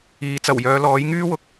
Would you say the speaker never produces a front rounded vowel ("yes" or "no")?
no